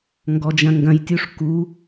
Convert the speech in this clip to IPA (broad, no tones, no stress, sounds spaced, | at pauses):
ŋ ɡ ɔ d͡ʒ ɐ̃ ŋ ɡ ɐ̃ j tʲ u ʂ k u